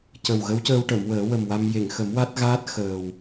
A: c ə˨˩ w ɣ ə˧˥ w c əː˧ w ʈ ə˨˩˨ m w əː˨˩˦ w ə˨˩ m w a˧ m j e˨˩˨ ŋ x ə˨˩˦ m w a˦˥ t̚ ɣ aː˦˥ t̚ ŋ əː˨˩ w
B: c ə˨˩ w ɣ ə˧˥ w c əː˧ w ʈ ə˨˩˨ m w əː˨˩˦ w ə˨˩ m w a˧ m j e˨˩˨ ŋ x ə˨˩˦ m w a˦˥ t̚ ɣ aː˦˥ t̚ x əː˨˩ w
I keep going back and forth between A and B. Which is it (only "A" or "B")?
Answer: B